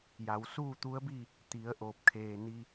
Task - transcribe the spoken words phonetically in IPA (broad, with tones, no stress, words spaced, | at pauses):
ja˩˧wsuː˥˨ t̪u˧˥ə̯bi˥˨ | t̪i˩˧ə̯ ʔoː˧˩p̚kʰeː˧˩ni˧